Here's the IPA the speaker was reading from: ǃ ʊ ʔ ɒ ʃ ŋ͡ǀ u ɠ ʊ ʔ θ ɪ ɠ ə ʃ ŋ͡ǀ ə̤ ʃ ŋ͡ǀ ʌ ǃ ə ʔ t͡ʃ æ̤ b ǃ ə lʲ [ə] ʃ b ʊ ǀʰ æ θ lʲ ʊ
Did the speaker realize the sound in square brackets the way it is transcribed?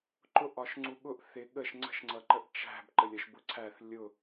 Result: yes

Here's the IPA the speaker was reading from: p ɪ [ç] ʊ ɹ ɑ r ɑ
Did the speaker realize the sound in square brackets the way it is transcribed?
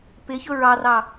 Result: yes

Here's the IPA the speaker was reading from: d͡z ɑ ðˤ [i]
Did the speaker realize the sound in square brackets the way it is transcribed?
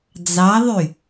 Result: no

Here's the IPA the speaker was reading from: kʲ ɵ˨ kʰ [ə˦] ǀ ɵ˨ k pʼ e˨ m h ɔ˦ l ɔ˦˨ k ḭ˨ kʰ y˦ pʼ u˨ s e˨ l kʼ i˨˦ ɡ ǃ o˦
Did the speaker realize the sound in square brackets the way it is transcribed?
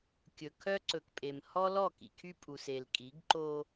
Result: no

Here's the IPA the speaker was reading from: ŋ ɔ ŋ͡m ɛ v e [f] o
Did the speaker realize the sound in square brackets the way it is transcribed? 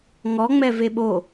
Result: no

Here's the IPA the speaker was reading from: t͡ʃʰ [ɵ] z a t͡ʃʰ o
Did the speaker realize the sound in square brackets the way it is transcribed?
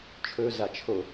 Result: yes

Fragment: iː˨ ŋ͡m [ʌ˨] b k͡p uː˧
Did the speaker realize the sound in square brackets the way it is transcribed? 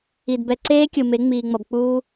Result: yes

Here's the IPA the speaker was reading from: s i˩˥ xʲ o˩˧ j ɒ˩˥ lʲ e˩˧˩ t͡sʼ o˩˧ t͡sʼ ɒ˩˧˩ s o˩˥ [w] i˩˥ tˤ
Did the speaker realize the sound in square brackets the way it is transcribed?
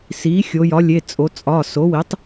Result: yes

